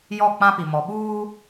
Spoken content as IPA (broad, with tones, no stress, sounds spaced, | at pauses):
j ɔ˦˨ k͡p ã˦ p i˨ m ɔ˨ ɓ uː˦